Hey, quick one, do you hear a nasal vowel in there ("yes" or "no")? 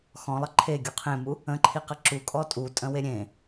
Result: yes